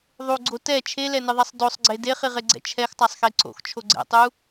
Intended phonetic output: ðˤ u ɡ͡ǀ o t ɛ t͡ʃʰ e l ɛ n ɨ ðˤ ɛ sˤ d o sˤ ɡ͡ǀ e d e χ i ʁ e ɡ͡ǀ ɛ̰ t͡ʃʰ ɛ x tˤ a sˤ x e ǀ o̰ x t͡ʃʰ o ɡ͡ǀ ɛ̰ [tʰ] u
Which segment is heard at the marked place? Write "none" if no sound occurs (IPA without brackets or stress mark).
tˤ